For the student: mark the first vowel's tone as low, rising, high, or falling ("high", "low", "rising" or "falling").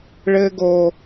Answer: high